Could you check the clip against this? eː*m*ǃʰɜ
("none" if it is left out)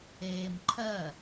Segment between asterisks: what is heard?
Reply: m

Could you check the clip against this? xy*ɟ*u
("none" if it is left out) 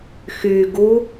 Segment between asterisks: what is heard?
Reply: ɡ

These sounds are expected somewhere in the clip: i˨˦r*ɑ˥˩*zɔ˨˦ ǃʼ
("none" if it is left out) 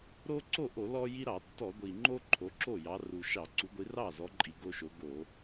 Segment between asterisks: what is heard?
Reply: ɑ˥˩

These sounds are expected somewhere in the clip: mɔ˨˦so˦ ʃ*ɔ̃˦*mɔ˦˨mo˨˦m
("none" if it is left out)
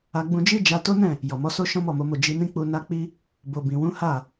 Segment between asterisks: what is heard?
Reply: ɔ̃˦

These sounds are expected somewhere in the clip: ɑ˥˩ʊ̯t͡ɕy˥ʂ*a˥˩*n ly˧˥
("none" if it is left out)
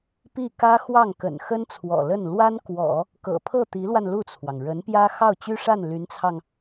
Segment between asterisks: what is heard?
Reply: a˥˩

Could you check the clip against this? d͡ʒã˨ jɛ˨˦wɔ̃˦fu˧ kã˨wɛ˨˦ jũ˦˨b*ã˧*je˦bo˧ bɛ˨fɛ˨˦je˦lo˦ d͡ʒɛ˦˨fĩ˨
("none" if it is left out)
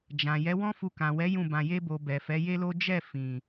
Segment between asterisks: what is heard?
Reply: ã˧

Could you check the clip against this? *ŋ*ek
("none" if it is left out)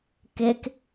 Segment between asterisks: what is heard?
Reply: k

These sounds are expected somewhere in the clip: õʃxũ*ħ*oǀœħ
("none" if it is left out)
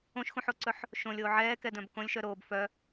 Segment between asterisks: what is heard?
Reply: ħ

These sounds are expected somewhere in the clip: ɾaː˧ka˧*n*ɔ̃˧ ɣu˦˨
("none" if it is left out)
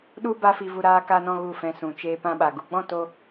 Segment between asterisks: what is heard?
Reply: n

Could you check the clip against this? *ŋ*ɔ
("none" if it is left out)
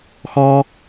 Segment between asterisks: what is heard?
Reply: x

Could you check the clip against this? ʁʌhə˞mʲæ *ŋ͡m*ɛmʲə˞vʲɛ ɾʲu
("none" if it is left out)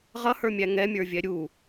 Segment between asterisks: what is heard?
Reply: ŋ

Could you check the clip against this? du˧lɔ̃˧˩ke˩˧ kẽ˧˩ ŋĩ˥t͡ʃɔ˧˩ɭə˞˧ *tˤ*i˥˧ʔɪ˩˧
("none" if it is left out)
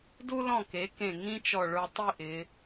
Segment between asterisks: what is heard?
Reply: tˤ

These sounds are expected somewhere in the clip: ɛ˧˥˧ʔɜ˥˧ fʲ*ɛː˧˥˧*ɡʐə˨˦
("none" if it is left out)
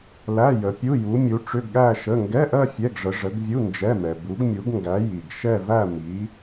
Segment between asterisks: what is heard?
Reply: ɛ˧˥˧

